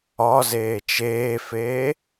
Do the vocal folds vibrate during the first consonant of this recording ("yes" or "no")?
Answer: yes